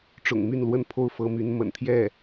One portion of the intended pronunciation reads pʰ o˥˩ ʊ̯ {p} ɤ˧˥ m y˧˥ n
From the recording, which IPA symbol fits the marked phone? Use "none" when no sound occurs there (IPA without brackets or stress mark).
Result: f